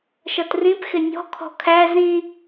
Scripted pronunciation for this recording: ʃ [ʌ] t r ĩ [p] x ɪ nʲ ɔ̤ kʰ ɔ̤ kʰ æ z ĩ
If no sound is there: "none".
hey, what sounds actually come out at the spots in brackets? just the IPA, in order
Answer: ʌ, p

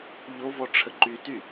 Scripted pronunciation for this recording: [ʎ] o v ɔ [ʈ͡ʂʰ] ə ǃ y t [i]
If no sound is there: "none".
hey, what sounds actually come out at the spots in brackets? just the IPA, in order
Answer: ʎ, ʈ͡ʂʰ, y

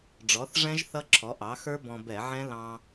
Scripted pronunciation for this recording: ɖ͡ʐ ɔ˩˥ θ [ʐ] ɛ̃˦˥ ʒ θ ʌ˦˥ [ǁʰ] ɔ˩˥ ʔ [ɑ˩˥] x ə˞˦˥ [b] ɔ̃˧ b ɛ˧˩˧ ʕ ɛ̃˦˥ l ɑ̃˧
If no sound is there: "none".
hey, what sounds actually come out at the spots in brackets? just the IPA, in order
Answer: ʐ, ǁʰ, ɑ˩˥, b

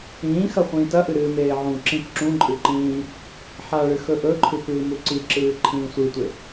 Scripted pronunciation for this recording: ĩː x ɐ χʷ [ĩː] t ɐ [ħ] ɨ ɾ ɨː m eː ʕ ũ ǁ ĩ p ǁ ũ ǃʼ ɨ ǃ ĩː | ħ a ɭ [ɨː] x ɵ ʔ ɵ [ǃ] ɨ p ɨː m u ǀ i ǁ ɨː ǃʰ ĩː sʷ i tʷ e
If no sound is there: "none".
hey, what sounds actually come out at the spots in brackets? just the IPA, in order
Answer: ĩː, ʔ, ɨ, ǃʰ

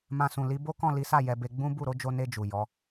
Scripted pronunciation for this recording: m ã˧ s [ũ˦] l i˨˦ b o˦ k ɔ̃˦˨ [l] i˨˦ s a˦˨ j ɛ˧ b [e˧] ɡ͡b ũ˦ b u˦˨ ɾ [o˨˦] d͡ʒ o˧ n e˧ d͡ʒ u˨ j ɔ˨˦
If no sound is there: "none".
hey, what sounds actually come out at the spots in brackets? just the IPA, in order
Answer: ũ˨, l, e˧, o˨˦

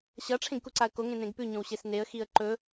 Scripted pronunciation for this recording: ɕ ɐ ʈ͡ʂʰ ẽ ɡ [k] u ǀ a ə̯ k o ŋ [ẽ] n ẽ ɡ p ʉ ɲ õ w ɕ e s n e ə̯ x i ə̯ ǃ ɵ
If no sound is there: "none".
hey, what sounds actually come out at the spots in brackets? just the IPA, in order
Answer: k, ẽ

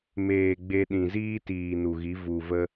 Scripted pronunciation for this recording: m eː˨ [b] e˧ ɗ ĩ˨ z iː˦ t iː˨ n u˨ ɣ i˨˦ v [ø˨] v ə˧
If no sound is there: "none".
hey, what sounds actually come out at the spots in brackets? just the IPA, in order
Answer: ɡ͡b, u˨

